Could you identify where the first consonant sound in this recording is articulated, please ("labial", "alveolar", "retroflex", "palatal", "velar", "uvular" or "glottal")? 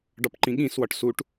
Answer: retroflex